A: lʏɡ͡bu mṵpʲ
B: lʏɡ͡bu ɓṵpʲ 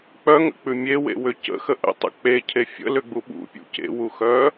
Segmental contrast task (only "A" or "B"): B